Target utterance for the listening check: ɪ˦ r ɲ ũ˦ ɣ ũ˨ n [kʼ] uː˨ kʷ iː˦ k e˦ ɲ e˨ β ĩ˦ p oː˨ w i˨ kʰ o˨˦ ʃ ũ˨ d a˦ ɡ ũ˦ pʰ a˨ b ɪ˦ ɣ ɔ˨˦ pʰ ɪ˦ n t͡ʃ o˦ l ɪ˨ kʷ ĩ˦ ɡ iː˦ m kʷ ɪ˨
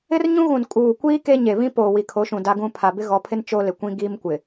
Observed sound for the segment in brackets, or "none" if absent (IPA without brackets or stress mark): kʼ